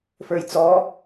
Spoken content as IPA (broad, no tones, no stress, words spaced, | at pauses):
fə˞jt͡sɔ